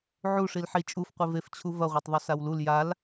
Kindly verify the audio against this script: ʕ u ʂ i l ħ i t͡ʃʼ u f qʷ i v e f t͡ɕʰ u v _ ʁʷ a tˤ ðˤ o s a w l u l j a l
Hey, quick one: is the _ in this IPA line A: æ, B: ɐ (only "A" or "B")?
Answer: B